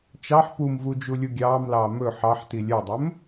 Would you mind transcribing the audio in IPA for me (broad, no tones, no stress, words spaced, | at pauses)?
t͡ʃɑħ pumvu d͡ʒulʲuɡʲɑːmlɑː mɵ ħɑħti lʲœdˤɵm